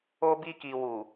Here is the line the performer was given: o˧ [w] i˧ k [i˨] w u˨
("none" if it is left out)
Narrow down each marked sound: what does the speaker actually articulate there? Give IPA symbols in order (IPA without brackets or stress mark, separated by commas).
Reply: b, i˨